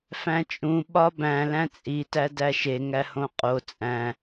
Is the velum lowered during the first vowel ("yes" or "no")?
yes